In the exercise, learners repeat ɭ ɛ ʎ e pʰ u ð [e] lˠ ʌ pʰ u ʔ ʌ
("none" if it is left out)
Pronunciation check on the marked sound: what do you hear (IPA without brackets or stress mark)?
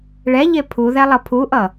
ɛ